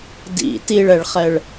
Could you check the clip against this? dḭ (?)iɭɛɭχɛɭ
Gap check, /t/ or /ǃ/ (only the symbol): t